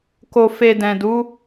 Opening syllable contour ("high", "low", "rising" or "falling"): low